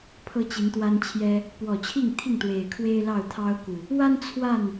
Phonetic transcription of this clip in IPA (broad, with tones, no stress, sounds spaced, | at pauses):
pʰ ɤ˦ t͡ɕ i˨˦ n t̪ w a˦ n t͡ɕʰ j ɛ˦ | p w ɔ˨˩ t͡ɕʰ i˥˨ ŋ t̪ʰ i˥˨ ŋ t̪ w e˨˩ ɪ̯ kʰ w e˦ ɪ̯ l ɑ˥˨ ʊ̯ t̪ʰ ɑ˦ ʊ̯ k u˨˩ | w a˦ n t͡sʰ w a˥˨ n